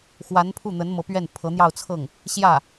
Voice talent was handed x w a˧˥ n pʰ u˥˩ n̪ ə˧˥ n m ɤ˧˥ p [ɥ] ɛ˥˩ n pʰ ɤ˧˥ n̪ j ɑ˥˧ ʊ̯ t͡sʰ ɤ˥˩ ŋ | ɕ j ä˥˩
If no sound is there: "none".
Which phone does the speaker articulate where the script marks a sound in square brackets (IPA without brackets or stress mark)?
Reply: ɥ